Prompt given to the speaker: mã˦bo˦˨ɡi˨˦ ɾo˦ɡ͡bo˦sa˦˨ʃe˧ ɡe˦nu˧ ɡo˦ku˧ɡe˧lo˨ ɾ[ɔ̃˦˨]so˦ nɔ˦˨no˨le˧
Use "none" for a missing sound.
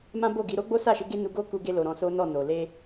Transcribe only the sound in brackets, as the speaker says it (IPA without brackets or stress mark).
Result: ɔ̃˧